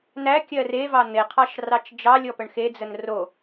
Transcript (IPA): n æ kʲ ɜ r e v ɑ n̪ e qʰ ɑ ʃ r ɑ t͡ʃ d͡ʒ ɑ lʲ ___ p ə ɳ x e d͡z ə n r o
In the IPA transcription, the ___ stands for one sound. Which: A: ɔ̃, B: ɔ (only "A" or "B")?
B